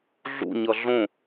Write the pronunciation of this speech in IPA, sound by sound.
ɮṵɲʌ ɮõ

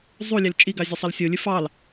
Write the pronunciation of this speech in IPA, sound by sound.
zˤu lʲɛlt͡ʃʼiɡɑ zʲəsˤəlsʲolʲɨ fɑl

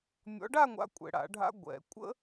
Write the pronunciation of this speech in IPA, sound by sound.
mʲɔ̰˨˦ɖa˥˧ŋʷa̰˨˦ kʷʼɛ̰˨ɽa̰˨˩˦ɖʱa̰˦˥ ɡʷɛ̰˨˩˦ kʷʼə̰˦˥

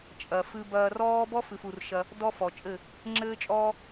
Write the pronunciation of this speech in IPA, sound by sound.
t͡ʃʼɐ˨fɨ˧bɐː˧ rɔː˦ bɔ˦fɨ˨fu˨r ʃɐ˧ | dɔ˦fɔ˨t͡ʃʼɘ˦˨ | ŋ͡ǁɘː˦t͡ʃʼɔː˦

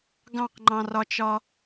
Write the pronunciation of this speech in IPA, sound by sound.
ɡɑ̃qŋ͡ǃɑ̃rɒt͡ʃɒ

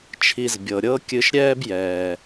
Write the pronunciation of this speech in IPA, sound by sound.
t͡ʃʰi˧zbʲɤ˨ ɾʲɤ˦kʲɨ˧ʃɾʲɛː˦b jɛː˨

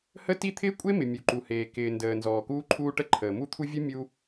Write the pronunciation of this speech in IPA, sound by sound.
hə˥ ti˥ t̪ʰɪː˥kʷʼe˥mɪ˩ mʲu˩ǃu˩heː˩ kɪː˩ndəː˩ nzɔː˩kuː˥ǃʰuː˥ʈə˥ ǃʰəː˩mu˥t̪ʰu˥ vʲə˥ mʲu˥

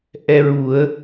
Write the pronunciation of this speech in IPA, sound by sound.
ʔɛ˧ɹu˨˩˦ə̯

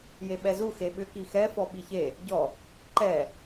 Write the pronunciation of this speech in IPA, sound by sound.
jeɓɛzu xeɓʏ kixɛ fɔɓiçe | ɟɔ | ǃɛ

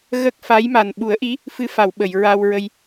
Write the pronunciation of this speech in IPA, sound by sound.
ɣə˦˥k̚fa˧˥jma˨˩n ɓu˨˩˦ə̯ʔi˧˥ | fɨ˧fa˨˩˨w ɓə˨˩˨jɹa˧wɹə˧j

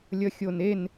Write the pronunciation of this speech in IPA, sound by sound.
lʲʌxʲonen

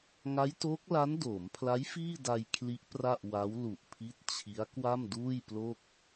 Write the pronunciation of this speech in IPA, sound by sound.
ŋa˦˥jtoː˦˥k̚la˦˥n doː˩˦mpʰla˦˥j fiː˥˩da˧j kʰli˦˥ʔ pra˥˩ʔwa˦˥w lu˨˩ʔpʰi˦˥t̚t͡ɕʰi˦˥a̯ kwa˥˩mduː˥˩jplo˥˩k̚

